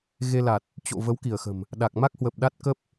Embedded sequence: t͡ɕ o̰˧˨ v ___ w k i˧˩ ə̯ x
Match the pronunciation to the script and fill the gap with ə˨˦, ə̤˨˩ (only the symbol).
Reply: ə˨˦